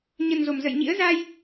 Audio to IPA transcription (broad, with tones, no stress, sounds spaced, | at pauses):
ɲ ə˨˩ n z o˧˩ m z ə̰˧˨ j ɲ ḭ˧˥ ə̯ z a˧ j